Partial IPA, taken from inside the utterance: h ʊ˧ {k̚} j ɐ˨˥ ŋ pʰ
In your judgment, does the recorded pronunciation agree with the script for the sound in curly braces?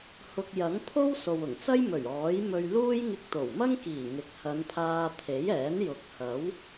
yes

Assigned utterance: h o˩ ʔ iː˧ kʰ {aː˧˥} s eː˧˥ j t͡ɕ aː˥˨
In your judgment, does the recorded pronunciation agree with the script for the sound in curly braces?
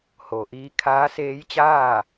yes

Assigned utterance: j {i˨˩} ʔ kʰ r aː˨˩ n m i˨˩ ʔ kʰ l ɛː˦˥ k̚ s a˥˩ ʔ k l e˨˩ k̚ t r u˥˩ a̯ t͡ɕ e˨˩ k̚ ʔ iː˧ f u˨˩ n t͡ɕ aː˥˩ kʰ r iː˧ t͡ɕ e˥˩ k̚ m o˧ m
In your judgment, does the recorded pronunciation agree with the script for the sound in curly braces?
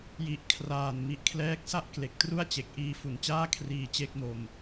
yes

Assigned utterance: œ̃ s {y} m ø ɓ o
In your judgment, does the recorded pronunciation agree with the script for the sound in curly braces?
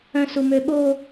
no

